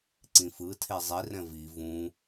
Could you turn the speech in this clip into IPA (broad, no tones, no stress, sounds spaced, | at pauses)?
ǀ ĩ f ɯ tʰ e zˤ i r ɛ̃ v i v ũ